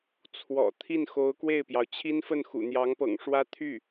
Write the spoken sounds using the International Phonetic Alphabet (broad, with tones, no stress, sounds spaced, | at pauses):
t͡sʰ w ɔ̰˨˩ t̪ʰ i˥˩ n x o˧˥ ʊ̯ k w e˥˩ ɪ̯ p j ɑ˩ ʊ̯ t͡ɕʰ i˥ n f ə˥˩ n x ṵ˨˩ n̪ j ɑ˧˥ ŋ p ɤ̰˨˩ ŋ ʂ w ä˥ t̪ʰ y˥˩